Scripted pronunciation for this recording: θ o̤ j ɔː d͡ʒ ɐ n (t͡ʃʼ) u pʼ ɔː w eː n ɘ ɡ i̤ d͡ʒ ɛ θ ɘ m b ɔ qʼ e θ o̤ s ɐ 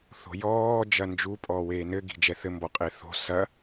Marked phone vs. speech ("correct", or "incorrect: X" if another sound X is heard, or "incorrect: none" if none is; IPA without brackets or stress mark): incorrect: d͡ʒ